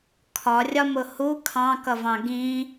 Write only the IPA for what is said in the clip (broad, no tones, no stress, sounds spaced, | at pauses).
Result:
kʰ ɒ rʲ ɒ m ʊ h u kʰ ɑ̃ k ʌ v ɑ̃ ɡ ĩ